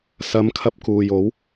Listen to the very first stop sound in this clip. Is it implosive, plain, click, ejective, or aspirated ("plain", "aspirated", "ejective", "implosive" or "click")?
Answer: aspirated